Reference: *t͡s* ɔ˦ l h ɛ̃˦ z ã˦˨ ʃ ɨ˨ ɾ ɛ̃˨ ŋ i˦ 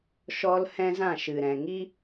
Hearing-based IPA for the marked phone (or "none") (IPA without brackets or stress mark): ʃ